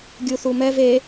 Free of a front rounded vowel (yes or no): yes